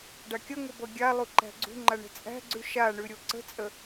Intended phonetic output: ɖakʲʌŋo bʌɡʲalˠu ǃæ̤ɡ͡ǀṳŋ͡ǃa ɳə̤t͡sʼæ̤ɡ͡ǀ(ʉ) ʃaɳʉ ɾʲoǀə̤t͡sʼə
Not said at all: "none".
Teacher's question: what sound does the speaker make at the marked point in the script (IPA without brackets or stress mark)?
ʉ